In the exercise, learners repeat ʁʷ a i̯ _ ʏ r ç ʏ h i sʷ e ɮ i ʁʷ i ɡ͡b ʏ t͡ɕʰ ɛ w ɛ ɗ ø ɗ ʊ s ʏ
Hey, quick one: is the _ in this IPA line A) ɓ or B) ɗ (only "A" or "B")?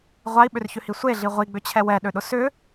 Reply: A